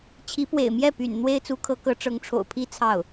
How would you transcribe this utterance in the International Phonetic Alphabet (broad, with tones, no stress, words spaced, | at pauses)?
t͡ɕʰi˧˥pwḛ˨˩ɪ̯mjɛ˥˩py̰˨˩n n̪we˥ɪ̯t͡su˧˥kʰɤ˧˥kɤ˧˥ ʈ͡ʂɤ˧˥ŋʈ͡ʂʰo̰˨˩ʊ̯ pʰi˥ t͡sʰɑ˥˩ʊ̯